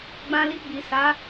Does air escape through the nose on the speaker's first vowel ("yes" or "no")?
yes